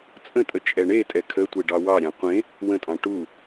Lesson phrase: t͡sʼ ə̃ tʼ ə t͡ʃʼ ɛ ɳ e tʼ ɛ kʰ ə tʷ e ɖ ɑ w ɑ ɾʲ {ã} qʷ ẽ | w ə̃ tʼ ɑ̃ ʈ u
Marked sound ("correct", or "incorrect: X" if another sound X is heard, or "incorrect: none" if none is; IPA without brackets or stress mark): incorrect: ɑ̃